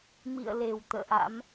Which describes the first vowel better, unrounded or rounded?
unrounded